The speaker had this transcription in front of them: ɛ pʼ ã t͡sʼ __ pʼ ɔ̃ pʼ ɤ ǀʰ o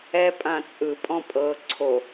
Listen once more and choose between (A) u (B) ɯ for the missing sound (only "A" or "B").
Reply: B